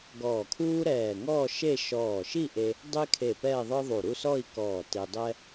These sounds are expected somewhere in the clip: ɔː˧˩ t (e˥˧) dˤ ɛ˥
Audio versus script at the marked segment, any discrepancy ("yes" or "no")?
yes